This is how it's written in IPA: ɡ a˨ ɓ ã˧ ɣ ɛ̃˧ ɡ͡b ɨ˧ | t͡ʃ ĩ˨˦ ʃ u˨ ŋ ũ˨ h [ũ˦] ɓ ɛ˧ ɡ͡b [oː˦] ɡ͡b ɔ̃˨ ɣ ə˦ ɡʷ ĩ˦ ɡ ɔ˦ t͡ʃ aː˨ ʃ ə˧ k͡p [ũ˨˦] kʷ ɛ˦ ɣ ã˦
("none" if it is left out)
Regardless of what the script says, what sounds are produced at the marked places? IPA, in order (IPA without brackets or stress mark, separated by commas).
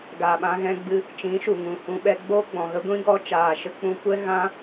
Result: ũ˧, oː˦, ũ˧